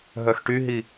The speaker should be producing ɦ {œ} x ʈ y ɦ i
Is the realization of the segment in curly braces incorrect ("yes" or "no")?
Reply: no